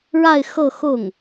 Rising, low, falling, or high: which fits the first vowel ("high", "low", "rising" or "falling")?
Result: falling